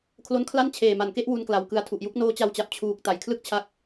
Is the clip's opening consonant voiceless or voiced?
voiceless